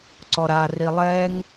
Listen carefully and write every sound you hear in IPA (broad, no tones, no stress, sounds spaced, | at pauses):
ǀ ɔ ɾ a r i lˠ ɛ ŋ